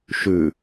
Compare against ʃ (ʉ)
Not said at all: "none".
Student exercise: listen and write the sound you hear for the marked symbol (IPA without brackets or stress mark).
ʉ